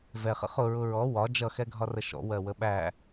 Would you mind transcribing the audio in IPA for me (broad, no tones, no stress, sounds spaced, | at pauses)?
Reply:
v ɛ χ ə̰ χ ʊ ɹ ʊ ɹ ɔ w ɒ d͡ʒ ʌ x ɛ ɡʱ ɒ r ə ʃ ɔ̰ w ɜ w ə ɓ æ